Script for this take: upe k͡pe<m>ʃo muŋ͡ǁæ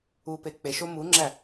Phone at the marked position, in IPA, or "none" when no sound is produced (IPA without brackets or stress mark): none